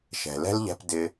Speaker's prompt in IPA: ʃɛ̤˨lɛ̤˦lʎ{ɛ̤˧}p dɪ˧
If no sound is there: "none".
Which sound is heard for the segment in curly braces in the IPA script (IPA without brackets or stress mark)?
ɛ̤˧